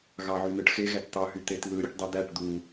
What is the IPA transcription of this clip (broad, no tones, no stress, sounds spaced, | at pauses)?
ɣ ɑ ʕ y n ɯ ʈ x e ɣ æ t t̪ ɑ ɦ y t̪ e t ð ɯ ɾʲ u ʈ dˤ i d̪ æ ʈ d̪ u